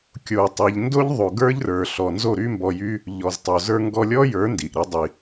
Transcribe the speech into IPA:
kʲ o˨ u̯ tˤ i˨ ʎ n d o˦ ʎ ðˤ o˨ ɡ ə˞˦ ʎ r ə˞˨ ɬ ɔ˧ n z o˦˨ ɾ y˦ m b ɔ˧ j y˦ | ʎ ɔ˨ z tˤ o˨ z ə˞˧ ŋ ɡ ɔ˧ lʲ ɔ˦ j ə˞˨˦ n d i˨ ʔ ɾ i˧ dˤ i˨

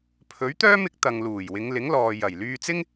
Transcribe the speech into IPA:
pʰ ɵ˨˥ ɥ t̪ œː˥ m ɪ˨˥ k̚ t̪ ɐ˨ ŋ l uː˨˩ j w ɪ˨˧ ŋ l ɪ˨˥ ŋ l ɔː˨ j ɐ˨˩ j l yː˧ t͡s ɪ˥ ŋ

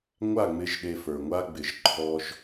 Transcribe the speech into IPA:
ŋʷ a˦˨ ŋ͡m ɪ˧ ʒ ɗ e˧ f ə˞˨ ŋʷ a˦ ɡ͡b ɪ˨˦ ʒ ǃʰ ɔ˧ ʒ

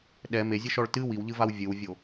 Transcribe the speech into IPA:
ɗ ɛ m e zʲ ɨ ʃ ɔ ɭ t ɨ w i w ʎ ɨ v a w vʲ ɨ w vʲ o

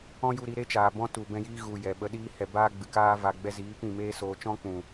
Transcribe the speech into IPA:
ɔ̃˦ j u˧ ɾ i˧ ɾ e˦ t͡ʃ aː˨ b ɔ̃˦ t u˨ b ɛ̃˦ j iː˦ ɣ u˨ j ɛ˨ ɓ ə˧ ɗ iː˦ h ɛ˨ b aː˦ ɡ͡b ɨ˨ k aː˦ v a˨ ɡ͡b ɛ˧ z iː˨˦ p ĩ˦˨ m eː˦ s oː˧ t͡ʃ ɔ̃˦ k͡p ũ˨

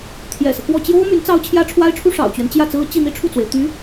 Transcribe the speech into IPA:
t̪ʰ j ɛ̰˨˩ s ɤ˦ k w ɔ˥˩ t͡ɕ j o˥ ʊ̯ m y˧˥ n t͡s ɑ˥ ʊ̯ t͡ɕʰ j ä˥ ʈ͡ʂʰ w a˥ ɪ̯ ʈ͡ʂʰ u˥ ʂ ɑ̰˨˩ ʊ̯ t͡ɕ ɥ ɛ˦ n t͡ɕ j ä˥˩ t͡s ɹ̩˥ t͡ɕ i˥˧ n̪ i˥˧ ʈ͡ʂʰ u˥˩ t͡s w e˩ ɪ̯ t̪ y˧˥

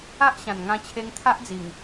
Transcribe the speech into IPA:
a˦ ʔ ɕ ã˨˩ n ŋ ã˧ t͡ɕʰ e˧ ŋ t̪ʰ a˦ ʔ d͡z i˨˩ ŋ

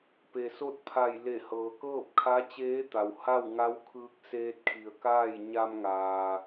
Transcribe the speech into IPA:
p e˩ s o˥˨ t̚ pʰ a˧˩ j l e˧˩ h ɤː˩ k ɤː˥˨ p̚ kʰ a˧˥ t͡ɕ eː˧˥ t̪ a˩ w h a˥˨ w ŋ a˧˥ w kʰ ɯː˧ k̚ s eː˧ t̚ kʰ i˩ ə̯ k aː˥˨ j ɲ a˧ m ŋ aː˩

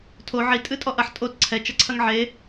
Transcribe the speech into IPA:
tʰ o ʕ i tʼ ɨ tʼ ɔ ʔ ɐ ħ tʼ o t ǀʰ ɛ t͡ʃ ɐ ǀʰ ɐ ŋ ʕ e

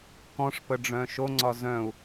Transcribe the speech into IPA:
k ɔ̃ ʂ p ə ɖ͡ʐ œ̃ ʃ o ŋ͡ǀ ɒ z œ̃ u̯

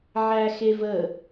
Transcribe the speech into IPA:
ʕ æ x e v ə

